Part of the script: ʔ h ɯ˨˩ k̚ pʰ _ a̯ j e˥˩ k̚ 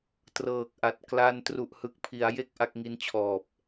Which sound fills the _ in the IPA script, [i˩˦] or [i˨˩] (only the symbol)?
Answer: i˩˦